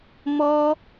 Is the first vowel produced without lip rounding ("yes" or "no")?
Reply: no